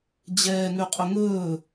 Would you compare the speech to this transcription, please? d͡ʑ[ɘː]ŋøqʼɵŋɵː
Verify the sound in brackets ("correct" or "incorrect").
incorrect